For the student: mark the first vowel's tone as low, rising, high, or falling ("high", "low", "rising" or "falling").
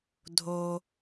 low